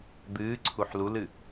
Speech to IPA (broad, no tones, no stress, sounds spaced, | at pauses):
d̪ ɨː ǀʰ u ħ l u l ɨ